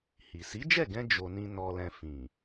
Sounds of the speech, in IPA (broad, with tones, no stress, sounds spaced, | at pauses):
h i˨ s i˨˦ d͡ʒ ɛ˦˨ ɡ ɛ̃˧ d͡ʒ o˧ n ĩ˦ n ɔ˧ l ɛ̃˧ f ĩ˨